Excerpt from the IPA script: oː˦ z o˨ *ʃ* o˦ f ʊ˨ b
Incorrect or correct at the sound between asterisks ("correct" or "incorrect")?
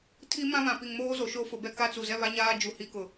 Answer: correct